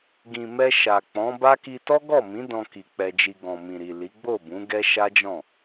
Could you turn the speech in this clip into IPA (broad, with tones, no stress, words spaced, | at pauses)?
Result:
ɡĩ˨ mɛ˧ʃa˨ k͡pɔ̃˨˦ba˦ki˧ tɔ˦ɡɔ˦˨mĩ˨˦ dɔ̃˧ki˨ k͡pɛ˧d͡ʒi˧ ɡɔ̃˨mĩ˨ɾi˨ li˨˦ ɡ͡bo˦˨ bũ˨˦ɡɛ˦ ʃa˦d͡ʒɔ̃˦˨